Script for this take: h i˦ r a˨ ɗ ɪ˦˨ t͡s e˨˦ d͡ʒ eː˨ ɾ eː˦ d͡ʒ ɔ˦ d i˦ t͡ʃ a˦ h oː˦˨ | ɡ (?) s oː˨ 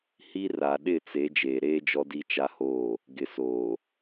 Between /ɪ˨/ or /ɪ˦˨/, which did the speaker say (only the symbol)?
ɪ˨